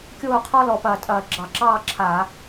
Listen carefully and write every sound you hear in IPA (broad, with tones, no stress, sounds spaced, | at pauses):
kʲ oː˥˨ qʰ ɔ˥ l ɔ˨˩ p ɐː˧˩˧ tʼ ɐː˨˩ ɡ͡ǁ ɑ˧˩˧ ǁ ɑː˥˨ ǁʰ aː˧˩˧